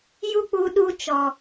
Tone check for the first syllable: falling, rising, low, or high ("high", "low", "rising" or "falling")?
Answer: high